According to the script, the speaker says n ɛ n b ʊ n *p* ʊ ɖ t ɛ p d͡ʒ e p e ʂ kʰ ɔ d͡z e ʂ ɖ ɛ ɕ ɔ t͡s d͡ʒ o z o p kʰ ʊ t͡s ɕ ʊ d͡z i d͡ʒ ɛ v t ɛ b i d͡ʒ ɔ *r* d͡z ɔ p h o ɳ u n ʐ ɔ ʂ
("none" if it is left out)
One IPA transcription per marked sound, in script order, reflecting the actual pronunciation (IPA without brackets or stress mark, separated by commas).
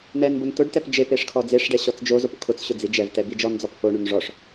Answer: t, n